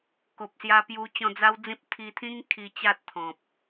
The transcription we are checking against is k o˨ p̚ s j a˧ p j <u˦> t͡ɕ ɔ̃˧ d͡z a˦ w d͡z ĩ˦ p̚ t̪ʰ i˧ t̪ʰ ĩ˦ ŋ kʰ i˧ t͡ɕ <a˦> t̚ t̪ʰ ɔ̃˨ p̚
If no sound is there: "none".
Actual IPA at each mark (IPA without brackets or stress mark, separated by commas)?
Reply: u˧, a˦